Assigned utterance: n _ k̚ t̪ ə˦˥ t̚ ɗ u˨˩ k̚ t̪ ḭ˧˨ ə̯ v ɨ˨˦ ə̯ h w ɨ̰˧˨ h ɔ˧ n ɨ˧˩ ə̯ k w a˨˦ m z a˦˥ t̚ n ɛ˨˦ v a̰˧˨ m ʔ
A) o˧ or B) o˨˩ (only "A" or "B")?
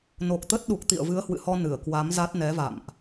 B